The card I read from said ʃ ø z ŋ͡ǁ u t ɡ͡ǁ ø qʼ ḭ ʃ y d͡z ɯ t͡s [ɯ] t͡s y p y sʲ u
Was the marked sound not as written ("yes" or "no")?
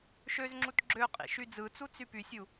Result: yes